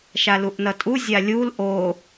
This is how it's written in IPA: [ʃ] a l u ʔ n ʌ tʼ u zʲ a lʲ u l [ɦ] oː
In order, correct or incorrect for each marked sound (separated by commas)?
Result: correct, incorrect